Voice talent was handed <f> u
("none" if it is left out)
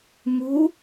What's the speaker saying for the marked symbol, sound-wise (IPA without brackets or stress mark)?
m